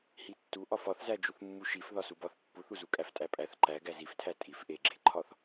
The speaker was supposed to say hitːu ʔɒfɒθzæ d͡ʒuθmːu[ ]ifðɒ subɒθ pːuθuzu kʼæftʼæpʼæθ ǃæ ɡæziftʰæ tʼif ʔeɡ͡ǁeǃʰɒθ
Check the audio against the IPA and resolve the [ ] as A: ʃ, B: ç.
A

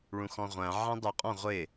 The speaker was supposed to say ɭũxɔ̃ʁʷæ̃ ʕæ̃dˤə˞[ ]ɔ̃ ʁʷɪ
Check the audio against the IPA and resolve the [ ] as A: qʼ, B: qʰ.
A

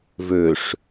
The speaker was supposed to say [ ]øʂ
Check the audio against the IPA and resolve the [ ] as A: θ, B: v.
B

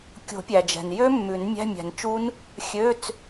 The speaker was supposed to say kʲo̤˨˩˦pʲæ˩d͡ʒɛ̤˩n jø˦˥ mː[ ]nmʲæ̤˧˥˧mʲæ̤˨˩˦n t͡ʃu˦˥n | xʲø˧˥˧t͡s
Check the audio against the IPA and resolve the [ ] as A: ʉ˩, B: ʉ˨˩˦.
B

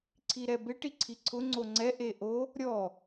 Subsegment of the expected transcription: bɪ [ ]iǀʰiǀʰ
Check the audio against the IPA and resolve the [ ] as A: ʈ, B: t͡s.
A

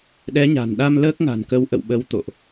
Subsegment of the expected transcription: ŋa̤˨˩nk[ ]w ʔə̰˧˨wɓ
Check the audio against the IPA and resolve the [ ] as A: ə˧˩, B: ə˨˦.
B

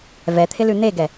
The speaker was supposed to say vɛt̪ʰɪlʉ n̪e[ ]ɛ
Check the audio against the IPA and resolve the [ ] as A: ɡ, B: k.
A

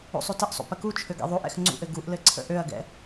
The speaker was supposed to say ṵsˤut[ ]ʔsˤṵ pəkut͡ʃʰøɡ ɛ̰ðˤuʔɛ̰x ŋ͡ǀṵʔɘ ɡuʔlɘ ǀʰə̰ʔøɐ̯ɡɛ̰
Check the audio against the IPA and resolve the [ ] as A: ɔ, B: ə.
B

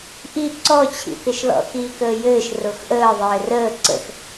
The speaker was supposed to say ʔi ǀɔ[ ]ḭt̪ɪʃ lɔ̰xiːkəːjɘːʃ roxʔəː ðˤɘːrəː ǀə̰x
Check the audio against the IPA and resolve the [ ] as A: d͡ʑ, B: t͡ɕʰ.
B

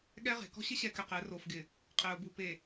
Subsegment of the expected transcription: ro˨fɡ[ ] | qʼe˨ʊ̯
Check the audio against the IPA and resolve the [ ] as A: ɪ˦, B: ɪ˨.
B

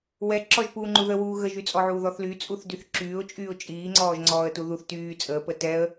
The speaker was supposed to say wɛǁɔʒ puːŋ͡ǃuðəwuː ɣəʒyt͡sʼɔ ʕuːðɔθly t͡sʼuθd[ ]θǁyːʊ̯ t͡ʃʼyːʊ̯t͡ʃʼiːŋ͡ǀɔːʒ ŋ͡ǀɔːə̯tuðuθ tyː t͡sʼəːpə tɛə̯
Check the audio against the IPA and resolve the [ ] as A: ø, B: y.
B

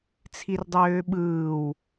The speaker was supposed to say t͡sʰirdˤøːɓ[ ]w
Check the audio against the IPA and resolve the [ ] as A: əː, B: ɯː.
B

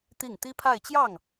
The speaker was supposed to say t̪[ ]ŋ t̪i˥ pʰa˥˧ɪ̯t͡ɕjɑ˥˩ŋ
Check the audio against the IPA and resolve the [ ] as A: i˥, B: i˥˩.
B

